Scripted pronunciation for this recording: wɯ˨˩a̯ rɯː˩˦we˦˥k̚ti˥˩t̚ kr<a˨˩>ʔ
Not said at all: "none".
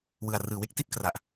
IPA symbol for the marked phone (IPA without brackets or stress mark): a˨˩